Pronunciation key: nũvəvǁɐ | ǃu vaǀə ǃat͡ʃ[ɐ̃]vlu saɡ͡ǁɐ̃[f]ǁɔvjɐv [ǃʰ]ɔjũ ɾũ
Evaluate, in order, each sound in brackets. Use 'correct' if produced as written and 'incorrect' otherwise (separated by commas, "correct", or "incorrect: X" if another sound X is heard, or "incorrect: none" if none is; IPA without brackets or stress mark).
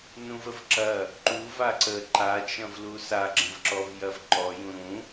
correct, incorrect: v, incorrect: ǃ